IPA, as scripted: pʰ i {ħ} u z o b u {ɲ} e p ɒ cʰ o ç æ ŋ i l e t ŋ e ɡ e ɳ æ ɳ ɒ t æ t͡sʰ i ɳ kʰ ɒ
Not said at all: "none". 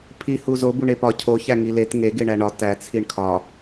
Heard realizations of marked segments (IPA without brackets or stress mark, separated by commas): h, ɳ